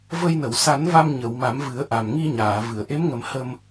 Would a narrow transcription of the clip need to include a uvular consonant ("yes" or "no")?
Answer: no